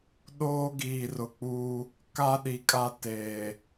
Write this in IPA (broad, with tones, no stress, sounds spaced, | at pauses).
ɗ oː˦ ɡ iː˨ r ʊ˨ k͡p uː˦ | k a˦ ɗ i˨ kʼ a˦ t eː˨